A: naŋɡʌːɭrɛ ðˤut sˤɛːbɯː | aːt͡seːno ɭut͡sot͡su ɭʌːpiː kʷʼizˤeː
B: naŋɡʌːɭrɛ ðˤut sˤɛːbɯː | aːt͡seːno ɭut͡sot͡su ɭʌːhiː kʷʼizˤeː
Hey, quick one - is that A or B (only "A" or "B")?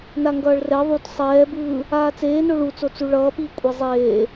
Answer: A